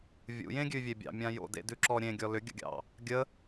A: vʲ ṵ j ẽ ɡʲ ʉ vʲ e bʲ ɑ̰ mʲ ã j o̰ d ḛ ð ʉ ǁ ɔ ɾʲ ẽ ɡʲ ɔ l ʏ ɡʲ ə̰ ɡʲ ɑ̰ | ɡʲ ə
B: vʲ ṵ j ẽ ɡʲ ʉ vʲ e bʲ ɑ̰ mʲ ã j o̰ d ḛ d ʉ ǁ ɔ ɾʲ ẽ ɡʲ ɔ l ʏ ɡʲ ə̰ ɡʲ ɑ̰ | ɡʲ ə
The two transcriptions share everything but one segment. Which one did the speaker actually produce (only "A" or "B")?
B